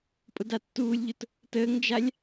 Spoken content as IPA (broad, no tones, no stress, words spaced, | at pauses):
pʼʊdatːuːlʲʎʊt | təːŋd͡ʒalʲ